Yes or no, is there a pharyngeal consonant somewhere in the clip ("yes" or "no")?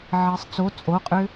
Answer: yes